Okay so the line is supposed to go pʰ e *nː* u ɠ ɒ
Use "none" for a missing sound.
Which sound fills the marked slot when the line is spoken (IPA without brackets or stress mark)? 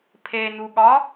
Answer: n